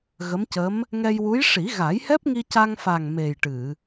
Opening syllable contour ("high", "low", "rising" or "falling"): rising